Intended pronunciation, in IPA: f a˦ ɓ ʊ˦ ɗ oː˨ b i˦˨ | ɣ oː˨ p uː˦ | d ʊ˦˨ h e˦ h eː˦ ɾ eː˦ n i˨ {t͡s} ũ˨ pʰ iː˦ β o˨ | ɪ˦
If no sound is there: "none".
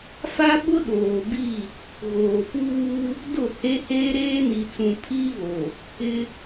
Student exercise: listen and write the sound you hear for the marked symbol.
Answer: t͡s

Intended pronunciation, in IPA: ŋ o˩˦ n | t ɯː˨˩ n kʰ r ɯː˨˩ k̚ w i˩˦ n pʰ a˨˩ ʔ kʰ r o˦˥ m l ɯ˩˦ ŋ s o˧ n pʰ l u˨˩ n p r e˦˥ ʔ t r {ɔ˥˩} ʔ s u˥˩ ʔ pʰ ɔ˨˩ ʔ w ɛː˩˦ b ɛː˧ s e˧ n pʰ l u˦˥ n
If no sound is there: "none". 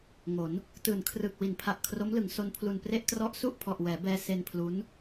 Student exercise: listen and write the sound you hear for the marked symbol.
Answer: ɔ˦˥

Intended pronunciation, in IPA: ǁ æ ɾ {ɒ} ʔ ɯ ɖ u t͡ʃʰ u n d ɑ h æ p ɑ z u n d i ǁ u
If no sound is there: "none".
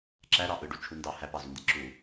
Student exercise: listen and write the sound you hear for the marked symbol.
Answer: ɑ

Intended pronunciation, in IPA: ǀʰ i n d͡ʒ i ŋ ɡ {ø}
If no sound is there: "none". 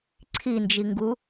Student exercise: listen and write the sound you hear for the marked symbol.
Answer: u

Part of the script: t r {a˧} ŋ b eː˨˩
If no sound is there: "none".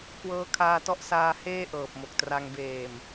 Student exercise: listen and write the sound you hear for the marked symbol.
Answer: a˧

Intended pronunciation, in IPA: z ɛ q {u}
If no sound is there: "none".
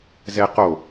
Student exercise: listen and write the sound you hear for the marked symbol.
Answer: o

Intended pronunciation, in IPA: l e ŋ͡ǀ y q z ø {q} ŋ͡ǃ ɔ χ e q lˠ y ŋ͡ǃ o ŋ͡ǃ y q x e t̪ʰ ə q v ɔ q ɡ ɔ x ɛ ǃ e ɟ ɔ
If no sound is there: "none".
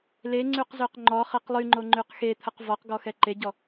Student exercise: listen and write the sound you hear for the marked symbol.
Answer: q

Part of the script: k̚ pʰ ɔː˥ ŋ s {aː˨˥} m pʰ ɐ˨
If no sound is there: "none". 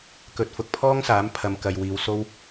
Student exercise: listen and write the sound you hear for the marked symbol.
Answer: aː˨˥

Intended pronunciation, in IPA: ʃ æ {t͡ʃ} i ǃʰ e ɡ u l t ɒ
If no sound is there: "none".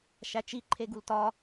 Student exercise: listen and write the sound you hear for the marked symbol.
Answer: t͡ʃ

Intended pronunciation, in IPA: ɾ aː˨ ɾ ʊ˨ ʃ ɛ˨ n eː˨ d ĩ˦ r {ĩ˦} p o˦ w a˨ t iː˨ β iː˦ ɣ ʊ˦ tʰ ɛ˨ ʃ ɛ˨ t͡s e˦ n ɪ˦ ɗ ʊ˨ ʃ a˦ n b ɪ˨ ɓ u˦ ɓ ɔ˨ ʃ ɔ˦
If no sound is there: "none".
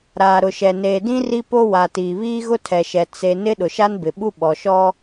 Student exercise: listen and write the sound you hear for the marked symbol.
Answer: i˦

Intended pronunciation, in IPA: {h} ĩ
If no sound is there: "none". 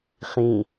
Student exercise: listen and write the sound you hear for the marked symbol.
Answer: χ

